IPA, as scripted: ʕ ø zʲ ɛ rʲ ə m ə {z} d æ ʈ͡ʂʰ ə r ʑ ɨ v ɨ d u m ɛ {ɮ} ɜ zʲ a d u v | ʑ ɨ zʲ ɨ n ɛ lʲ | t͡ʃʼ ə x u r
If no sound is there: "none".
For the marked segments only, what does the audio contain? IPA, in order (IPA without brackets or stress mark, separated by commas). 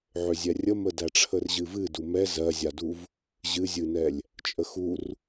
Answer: none, z